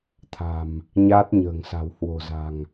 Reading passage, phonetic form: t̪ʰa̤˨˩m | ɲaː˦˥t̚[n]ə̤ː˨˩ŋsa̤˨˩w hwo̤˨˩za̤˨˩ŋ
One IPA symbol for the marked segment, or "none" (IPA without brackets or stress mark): ɲ